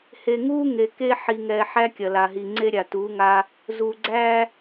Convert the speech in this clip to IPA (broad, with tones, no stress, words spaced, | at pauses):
he˨ŋuː˦ ŋe˨ke˦ ħi˨ ŋɛ˨ħæ˦ kʲɐ˨la˨ɦi˨ ŋ͡ǀe˦ɾʲa˨ tuː˨˦ŋa˦ | zuː˨ɡ͡ǀæː˦